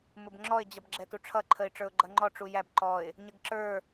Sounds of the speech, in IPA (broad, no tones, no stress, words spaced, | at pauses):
mʊbŋ͡ǁɔɪ̯ d͡ʑʌbɡ͡ǁɛtuʈ͡ʂʰʌ ǃʰəɪ̯ʈ͡ʂə˞ʊ̯ɡ͡ǃʌŋ͡ǃɔ ʈ͡ʂujæb ǃɔɪ̯ | ɲəɡǁə˞